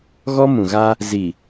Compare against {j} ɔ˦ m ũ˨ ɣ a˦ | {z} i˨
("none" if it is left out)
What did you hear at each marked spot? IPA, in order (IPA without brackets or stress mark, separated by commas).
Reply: ɣ, z